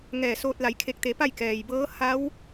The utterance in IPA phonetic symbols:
ŋɛː˧˩soː˧t̚ la˩˧jkʰe˧˩k̚t̪e˩˧ pa˥˨jkɛː˩jbɤː˧˥ ha˧˥w

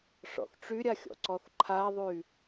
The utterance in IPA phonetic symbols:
ʂɔ̰θʈ͡ʂyɾʲaxʲɔ̰ ǀɔθǃʰaðˤy

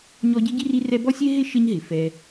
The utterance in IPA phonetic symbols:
ɲɔ˦ɟɪ˥ɟi˥r i˦rɛ˦bɔ˥sʲe˥ ɦɪ˥ ʃɪ˦ɲɦɪ˩fɛ˨

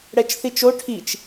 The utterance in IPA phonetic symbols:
ɽɛt͡ʃθit͡ʃo ʈʰit͡ʃ

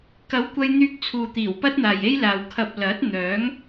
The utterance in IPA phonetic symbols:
kɐ˨˥wkʷɐ˧j n̪yː˧k̚t͡sʰuː˨t̪iː˨˩w pɐ˥t̚n̪aː˨je˥jlaː˨w kʰɐ˨p̚ lɐ˨˥t̚n̪œː˨˥ŋ

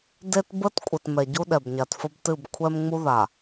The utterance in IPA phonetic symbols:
de˦tbə˦t kʷʼɨ˨tmɛ˨ɟu˦ ɗɛ˨bɲa˨tfə˦btɨ˦˨b kʷʰɛ˦mŋ͡mu˦ða˨

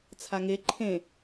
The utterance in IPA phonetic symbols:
t͡sʰaŋe ǃʰẽ

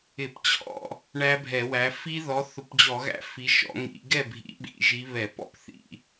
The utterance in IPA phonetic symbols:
ɪ˧˩˧pt͡ɕʰɔ̰˥˨ | ɳæ˦˥bʱɛ˧˩˧wæ˨˦ fi˦˥ðɔ˨˦ θʊ˨˦pd͡ʑɔ˧˩˧ɣæ̰˦˥ fi˨˦ʃɔ̰˨˦ ŋḭ˧˩˧ ɡɛ˥˨bʱḭ˨˦ɓḭ˧˩˧ ʒi˨˦ βɛ˧˩˧pɔ̰˥˨pθḭ˧˩˧

